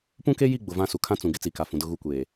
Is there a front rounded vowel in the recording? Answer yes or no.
no